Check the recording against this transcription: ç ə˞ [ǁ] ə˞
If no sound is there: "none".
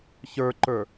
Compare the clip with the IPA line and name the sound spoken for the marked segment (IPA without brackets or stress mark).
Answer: ǃ